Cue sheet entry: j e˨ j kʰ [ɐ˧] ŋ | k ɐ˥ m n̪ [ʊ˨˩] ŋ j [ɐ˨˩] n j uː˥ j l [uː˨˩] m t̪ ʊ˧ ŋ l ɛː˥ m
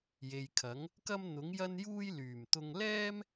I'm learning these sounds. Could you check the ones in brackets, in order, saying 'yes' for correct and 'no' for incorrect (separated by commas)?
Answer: no, no, no, no